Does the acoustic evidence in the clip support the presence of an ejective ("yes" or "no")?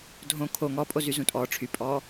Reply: yes